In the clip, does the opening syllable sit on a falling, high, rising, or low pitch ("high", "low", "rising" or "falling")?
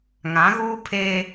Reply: rising